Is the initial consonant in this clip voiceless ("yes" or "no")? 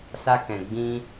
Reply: yes